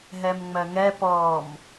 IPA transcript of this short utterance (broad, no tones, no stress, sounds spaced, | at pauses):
ɦ ɛ m ŋ͡m ɜ ŋ ɛ p ɔ m